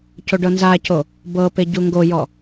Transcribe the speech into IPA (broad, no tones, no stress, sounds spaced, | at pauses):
c o ɖ ɤ n z a c o | b ɤ p e ɟ u ŋ ɡ o j ɔ